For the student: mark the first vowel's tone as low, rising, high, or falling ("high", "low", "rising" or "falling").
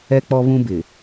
high